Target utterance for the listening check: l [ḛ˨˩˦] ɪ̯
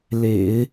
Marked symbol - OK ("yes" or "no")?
yes